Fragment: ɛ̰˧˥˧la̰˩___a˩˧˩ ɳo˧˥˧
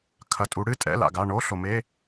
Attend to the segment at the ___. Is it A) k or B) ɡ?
B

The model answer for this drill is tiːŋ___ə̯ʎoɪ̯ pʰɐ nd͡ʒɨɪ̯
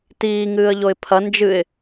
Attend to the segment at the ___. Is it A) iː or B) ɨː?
B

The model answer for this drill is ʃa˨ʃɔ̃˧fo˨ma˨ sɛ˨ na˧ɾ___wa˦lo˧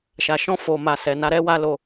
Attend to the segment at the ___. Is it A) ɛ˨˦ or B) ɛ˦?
B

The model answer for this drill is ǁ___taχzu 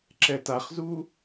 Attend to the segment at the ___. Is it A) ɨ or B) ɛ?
B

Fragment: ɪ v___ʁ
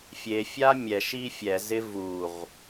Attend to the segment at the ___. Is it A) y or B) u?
B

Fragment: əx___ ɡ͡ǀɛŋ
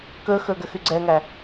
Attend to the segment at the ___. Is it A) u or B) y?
B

